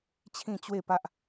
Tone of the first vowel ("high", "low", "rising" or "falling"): falling